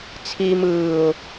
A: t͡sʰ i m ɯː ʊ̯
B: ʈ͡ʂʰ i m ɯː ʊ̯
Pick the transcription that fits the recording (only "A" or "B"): A